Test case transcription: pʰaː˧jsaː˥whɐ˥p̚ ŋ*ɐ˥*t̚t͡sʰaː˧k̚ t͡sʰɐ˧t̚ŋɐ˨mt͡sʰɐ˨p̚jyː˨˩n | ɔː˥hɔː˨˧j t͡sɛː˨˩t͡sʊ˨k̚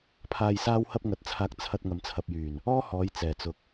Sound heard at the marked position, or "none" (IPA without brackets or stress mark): ɐ˨˥